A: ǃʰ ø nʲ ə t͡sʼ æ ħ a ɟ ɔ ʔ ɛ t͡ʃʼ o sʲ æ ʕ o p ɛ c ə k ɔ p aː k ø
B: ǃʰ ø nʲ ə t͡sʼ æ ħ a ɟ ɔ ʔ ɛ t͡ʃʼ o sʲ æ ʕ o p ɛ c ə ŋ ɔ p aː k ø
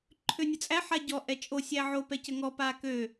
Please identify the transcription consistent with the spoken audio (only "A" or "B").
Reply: B